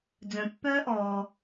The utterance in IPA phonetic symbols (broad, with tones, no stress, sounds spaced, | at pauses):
d͡z œ̃˩ pː œː˥ ʔ ɔː˩